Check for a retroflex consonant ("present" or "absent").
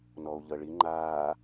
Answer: present